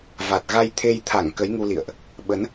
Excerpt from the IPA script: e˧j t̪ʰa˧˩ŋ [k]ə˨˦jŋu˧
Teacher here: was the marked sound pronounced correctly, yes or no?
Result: yes